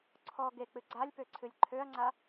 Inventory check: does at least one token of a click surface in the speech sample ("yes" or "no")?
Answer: yes